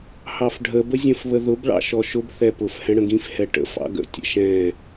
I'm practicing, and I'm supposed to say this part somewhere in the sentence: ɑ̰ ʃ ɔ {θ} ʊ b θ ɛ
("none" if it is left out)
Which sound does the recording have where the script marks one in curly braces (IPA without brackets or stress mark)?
ʃ